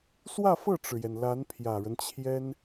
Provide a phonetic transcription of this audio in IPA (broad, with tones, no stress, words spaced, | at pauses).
swä˥˧fɤ˥˩ʈ͡ʂɻ̩˩jɛ˩n la˧˥n pʰjä˨˩ɻə˦nt͡ɕʰjɛ˥n